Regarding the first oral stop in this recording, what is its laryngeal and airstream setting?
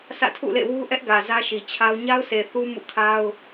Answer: aspirated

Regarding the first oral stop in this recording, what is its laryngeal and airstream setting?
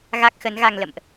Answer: plain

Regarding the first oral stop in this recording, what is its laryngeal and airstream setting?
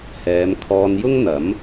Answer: aspirated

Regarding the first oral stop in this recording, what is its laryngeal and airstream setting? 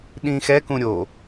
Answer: implosive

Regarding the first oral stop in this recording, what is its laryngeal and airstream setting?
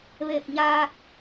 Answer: plain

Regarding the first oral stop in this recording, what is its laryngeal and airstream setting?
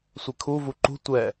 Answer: aspirated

